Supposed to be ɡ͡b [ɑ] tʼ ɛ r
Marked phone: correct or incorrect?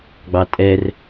correct